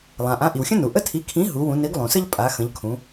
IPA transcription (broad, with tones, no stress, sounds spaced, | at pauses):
lˠ ã˩ ʔ ã˨˥ ʔ i˩ w xʲ ə̃˥ n u˩ ʔ ə˥ tʰ i˨˥ kʰ ĩ˨˥ ɦ u˨˥ w ũ˨˥ n i˨˥ ɡ lˠ ũ˩ s ə˥ ʎ pʼ a˨˥ x ə̃˨˥ ʎ kʰ ũ˨˥